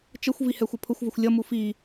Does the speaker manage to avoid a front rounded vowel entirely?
yes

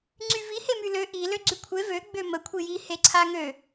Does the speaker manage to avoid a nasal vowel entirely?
yes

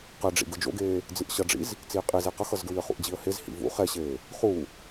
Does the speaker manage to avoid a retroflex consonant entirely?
no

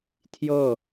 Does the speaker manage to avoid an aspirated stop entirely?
no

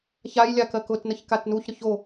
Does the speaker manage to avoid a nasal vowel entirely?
yes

